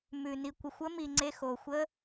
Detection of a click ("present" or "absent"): present